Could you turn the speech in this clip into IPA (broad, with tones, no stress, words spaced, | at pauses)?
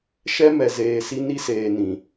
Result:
ʃɛ˦ mɛ˨ zeː˨si˧ ni˦seː˨ nĩ˨